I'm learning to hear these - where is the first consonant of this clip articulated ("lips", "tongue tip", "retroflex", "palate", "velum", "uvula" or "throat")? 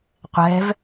uvula